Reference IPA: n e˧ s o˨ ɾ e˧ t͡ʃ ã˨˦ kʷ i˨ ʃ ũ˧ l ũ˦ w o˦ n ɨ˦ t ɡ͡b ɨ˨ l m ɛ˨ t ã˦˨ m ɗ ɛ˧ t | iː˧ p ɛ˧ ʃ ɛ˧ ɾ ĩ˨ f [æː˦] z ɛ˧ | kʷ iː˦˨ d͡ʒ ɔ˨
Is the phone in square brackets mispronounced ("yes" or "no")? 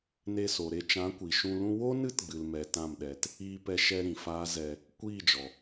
yes